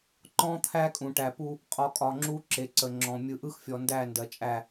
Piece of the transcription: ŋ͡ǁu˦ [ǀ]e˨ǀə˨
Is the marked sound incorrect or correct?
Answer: incorrect